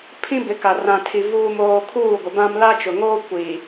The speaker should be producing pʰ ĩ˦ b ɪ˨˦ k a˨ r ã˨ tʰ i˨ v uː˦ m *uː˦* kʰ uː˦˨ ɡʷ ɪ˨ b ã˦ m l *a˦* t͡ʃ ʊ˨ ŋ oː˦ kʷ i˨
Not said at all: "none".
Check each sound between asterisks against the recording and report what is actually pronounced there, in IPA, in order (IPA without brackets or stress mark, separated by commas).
oː˦, a˦